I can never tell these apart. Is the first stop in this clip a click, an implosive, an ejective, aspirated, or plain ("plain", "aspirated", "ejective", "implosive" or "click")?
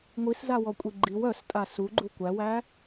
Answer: ejective